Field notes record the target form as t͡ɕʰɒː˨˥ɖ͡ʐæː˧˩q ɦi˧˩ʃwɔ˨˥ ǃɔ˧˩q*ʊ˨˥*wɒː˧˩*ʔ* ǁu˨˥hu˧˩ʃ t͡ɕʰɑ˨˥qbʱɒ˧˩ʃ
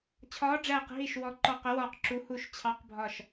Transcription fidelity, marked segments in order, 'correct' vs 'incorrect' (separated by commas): correct, incorrect